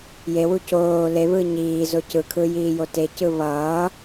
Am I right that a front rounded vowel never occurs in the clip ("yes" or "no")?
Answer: yes